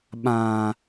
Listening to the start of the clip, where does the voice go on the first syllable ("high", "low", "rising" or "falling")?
low